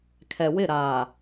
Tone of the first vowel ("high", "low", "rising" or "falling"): low